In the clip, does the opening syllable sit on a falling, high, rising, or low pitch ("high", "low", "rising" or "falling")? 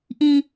low